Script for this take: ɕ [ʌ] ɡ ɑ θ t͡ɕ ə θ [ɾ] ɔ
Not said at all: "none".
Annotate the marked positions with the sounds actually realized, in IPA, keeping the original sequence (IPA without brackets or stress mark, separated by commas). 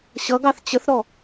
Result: ʌ, ɾ